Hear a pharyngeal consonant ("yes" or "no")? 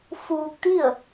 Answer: no